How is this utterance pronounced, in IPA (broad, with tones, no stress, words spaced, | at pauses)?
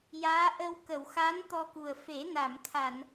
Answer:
jaː˧˥ʔə˧w kə˨˩˨wxa˧˥n t̪ɔ˧ku˨˩ə̯ fe˨˩˦na˨˩˨m t̪ʰa˨˩˨n